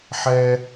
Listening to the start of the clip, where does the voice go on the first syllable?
high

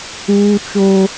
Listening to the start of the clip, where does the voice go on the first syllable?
high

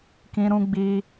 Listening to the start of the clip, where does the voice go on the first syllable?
high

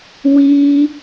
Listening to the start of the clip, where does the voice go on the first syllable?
high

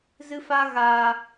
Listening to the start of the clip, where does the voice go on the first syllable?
high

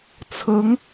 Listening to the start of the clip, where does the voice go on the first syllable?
rising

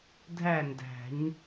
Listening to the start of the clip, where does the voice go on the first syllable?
falling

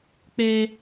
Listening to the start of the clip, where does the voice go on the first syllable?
high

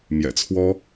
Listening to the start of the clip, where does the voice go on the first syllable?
low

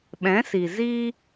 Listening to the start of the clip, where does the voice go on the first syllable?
rising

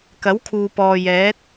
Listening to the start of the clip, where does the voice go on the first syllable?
rising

